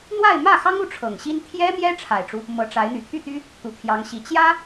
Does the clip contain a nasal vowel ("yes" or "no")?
no